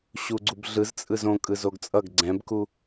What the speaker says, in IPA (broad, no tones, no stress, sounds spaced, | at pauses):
ɕ u ɡ͡ǀ u b ɮ ɯ z t͡sʼ ɯ z õ kʼ ɯ z o ɡ t͡sʼ ʌ ɡ ɡ͡ǀ ɛ̃ b k u